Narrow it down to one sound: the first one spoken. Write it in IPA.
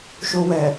ʃ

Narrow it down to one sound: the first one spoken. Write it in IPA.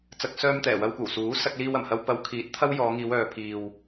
t͡s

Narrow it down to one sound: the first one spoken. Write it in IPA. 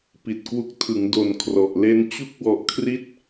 p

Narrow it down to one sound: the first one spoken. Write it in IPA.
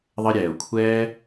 ðˤ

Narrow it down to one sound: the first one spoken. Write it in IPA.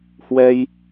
h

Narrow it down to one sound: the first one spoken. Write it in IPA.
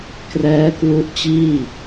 k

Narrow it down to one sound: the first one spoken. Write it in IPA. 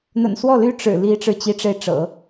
n̪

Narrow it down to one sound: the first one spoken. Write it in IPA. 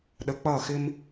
ɗ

